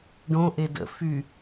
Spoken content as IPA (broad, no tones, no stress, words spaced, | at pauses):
ɖõʔe də̰ fy